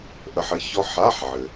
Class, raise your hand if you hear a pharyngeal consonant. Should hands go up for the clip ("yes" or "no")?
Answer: yes